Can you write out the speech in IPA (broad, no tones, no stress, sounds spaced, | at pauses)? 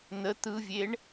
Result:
n̪ ə t̪ ɯ vʲ e ɳ